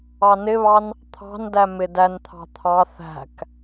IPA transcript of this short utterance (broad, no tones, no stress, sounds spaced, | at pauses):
ɑ n ɪ β ɑ n | t̪ʰ ɑ̤ n d æ m ɪ d æ n t̪ʰ ɑ̤ t̪ʰ ɑ θ æ̤ k